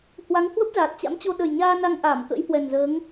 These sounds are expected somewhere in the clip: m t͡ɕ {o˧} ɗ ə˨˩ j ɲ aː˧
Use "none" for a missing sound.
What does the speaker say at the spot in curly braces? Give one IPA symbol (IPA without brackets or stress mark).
o˧